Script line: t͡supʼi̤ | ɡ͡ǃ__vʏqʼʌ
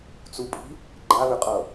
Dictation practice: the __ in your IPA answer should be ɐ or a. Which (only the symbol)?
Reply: a